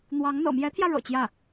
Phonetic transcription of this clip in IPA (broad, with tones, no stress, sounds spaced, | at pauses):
n̪ w ɑ˧˥ ŋ n̪ ɤ̰˨˩ m j ɛ˧˥ t̪ʰ j ä˧ ɻ ɤ̰˨˩ t͡ɕ j ä˥˩